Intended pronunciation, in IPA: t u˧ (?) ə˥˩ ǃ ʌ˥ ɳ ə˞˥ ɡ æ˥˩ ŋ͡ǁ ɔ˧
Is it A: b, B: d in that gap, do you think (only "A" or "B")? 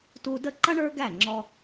B